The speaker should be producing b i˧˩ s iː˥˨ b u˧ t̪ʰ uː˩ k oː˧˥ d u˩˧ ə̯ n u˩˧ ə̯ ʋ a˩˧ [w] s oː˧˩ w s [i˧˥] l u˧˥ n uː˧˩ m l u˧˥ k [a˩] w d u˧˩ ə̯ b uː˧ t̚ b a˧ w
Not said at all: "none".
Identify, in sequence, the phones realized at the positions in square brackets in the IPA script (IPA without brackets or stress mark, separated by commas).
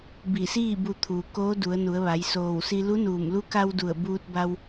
j, i˧, a˧